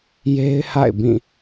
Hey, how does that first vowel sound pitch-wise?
high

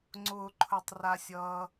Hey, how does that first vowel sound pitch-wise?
low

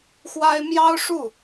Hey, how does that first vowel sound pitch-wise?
high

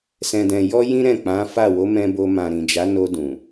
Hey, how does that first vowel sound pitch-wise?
low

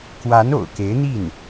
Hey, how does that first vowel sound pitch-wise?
rising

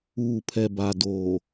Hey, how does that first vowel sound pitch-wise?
low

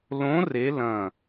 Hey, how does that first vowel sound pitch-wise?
rising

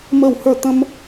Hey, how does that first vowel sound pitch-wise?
falling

